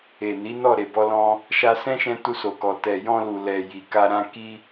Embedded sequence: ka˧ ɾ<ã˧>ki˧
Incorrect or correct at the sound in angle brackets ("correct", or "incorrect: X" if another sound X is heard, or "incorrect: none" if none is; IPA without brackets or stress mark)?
correct